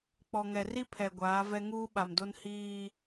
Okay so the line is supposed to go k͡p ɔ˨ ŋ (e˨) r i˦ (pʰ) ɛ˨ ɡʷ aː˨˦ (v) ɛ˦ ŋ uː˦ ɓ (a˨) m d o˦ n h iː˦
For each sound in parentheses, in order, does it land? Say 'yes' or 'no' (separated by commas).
no, yes, yes, yes